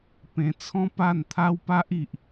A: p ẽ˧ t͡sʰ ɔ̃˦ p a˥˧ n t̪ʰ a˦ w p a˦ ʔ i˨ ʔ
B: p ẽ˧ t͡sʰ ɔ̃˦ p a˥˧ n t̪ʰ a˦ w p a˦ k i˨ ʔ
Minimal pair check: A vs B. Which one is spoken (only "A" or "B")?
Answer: A